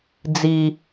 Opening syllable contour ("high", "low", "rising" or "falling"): low